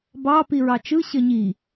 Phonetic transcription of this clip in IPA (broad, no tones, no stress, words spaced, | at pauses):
bɑ piɹɑt͡ʃɯ ɕəɲi